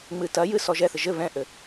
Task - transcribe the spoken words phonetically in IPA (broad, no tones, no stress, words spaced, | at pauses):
ŋ͡mɨtɐjɨ sɔʒɛθɘ ʒɘ βɛ̃ʔɘ